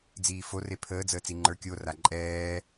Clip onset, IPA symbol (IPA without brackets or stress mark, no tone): d͡z